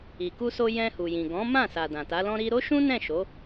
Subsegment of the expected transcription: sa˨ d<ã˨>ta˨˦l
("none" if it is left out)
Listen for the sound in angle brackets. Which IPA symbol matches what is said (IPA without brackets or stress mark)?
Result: ã˨